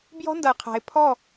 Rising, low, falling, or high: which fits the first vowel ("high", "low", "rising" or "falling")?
high